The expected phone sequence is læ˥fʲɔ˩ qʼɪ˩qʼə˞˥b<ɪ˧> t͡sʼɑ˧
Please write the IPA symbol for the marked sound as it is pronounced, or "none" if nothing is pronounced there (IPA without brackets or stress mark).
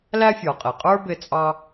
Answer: ɪ˧